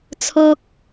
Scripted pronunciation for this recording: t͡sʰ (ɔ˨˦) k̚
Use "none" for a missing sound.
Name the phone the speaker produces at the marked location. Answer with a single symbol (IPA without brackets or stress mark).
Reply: ɔ˦